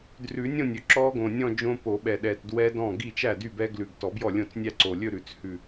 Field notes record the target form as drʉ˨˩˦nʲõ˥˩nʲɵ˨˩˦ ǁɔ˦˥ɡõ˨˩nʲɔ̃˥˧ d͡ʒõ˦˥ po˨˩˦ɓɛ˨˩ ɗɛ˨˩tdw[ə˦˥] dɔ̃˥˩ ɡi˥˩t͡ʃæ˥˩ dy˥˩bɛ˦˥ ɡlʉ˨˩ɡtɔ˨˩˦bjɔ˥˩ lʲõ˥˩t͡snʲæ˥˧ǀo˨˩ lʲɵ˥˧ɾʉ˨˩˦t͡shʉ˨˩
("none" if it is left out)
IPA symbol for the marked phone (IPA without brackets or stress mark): ɛ˦˥